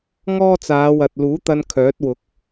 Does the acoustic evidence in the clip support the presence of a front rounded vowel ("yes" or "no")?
yes